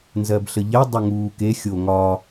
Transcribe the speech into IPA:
n z ɜ b ɬ ə ʎ ɛ dˤ ə ŋ uː k e xʲ o ŋ ɒ

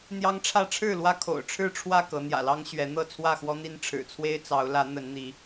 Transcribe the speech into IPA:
n̪ j ɑ˦ ŋ ʈ͡ʂʰ ä˥˨ ʈ͡ʂʰ ɻ̩˥˨ l w ä˦ kʰ o̰˨˩ ʊ̯ ʈ͡ʂʰ ɻ̩˥˨ ʈ͡ʂʰ w ä˥˨ k ɤ˨˦ n̪ j ä̰˨˩ l ɑ˦ ŋ ɕ ɥ ɛ˨˦ n̪ ɤ˥˨ t͡sʰ w ä˥˨ x w ɔ˦ n̪ i˦ n ʈ͡ʂʰ ɻ̩˨˩ t͡sʰ w e˦ ɪ̯ t͡s ɑ˨˦ ʊ̯ l ä˨˦ n̪ ə˨˦ n n̪ i˨˦

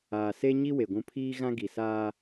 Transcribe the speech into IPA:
aː˨ s e˦ ɲ i˦ w e˨ ɡʷ ũ˦ pʰ iː˦ ɣ ã˦ ɡ i˨ s aː˦

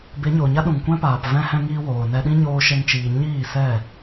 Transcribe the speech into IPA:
b e˨˦ ɲ o˨ ɲ a˦ ɗ ũ˨ ŋ kʷ ɛ̃˦ p aː˨ p v ɛ̃˧ h ɛ̃˧ ŋ iː˧ w oː˨ n ɛ˧ ɗ ĩ˦ ɲ oː˦ ʃ ɛ˦ ŋ t͡ʃ iː˧ ɲ iː˦˨ s ɛ˦˨

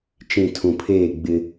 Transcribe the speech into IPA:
t͡ʃ ĩ˦˨ tʰ ũ˨ pʰ eː˦˨ ɡ͡b ɪ˦

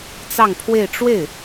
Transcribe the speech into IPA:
t͡s ɑ˥˧ ŋ pʰ w e˥˧ ɪ̯ ʈ͡ʂ w e˥˩ ɪ̯

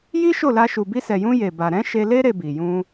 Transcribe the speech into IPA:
j i˦ ʃ o˦˨ l a˧ ʃ u˨ b i˧ s ɛ˨ j ũ˧ j e˨ b a˨ ɾ ɛ̃˨˦ ʃ e˧ l e˦ ɾ e˧ b i˨ j ũ˧

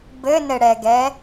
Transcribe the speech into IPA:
b ɘ n ɘ ɽ ɛ ɡ ɛ

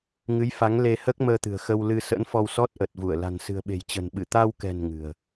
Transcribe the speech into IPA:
ŋ ɨ˨˦ j f a˨˦ ŋ l e˧ h əː˦˥ k̚ m əː˧ t̪ ɨ̤˨˩ ə̯ x ə˧ w l ɨ˧ s ə̰˧˥ n f ɔ˧ w s ɔ˦˥ t̚ ʔ ə˨˩ t̚ v u˧˩ ə̯ l a̤˨˩ n s ɨ̤˨˩ ə̯ ɓ e̤˨˩ j t͡ɕ ə̤˨˩ n ɓ ɨ˧˩ t̪ a˧ w k ɛ̤˨˩ n ŋ ɨ̤˨˩ ə̯

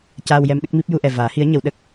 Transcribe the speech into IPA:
c aː˧ w j ɛ˧ m ɗ ə˦˥ k̚ m i˦˥ p̚ j u˧ ʔ ɛ˨˩ v aː˨˩˦ h i˧˥ ə̯ ɲ ə˨˩˦ w ɗ ə˦˥ k̚

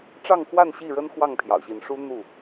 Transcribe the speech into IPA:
ʈ͡ʂ ɑ˥˨ ŋ x w a˥˨ n ɕ i˥˨ ɻ ə˦ n x w ɑ˥˨ ŋ pʰ j ɑ̰˨˩ ʊ̯ ɕ i˨˦ n ʂ u˦ n̪ u˥˨

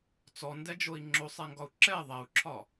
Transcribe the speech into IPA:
t͡s ɔ n d ɛ d͡ʒ o i̯ ŋ͡ǁ o sˤ ɛ ŋ ɡ ɒ u̯ ǁ ɛ ðˤ ɛ u̯ ǁʰ ɒ

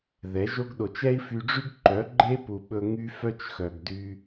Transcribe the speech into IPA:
ð ɛ˨˦ ʒ o˦ ɡ ɗ o˨ t͡ʃ ɛ˦ i̯ f y˧ ɖ͡ʐ y˦ ɡ ǃ œ˨˦ ɡ͡ǃ e˦ p u˨ ɓ ɵ˧ ŋ y˦ f œ˦ t͡ʃ x œ˨ ɡ d y˧

